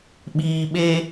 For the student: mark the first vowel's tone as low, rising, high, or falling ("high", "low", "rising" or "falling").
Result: low